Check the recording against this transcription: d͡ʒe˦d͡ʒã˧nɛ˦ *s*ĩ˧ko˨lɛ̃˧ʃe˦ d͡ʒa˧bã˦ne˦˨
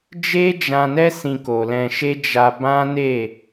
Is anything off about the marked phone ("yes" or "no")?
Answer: no